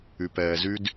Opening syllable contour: low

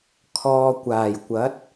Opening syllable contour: low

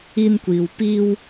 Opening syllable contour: high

